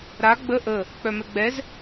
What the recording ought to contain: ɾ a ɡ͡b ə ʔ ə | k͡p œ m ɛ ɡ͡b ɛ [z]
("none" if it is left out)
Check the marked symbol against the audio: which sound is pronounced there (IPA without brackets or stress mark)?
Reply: z